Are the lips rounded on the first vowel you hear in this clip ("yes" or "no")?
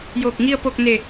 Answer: yes